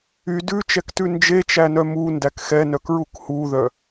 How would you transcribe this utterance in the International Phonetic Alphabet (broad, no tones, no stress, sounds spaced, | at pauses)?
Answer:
y d ʉ t͡ʃ ɛ k t ʉ n d͡ʒ e t͡ʃ æ n œ m u n d æ k x ɛ n œ k ɹ u k h u ð œ